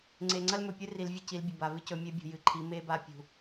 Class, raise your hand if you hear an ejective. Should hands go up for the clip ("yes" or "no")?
no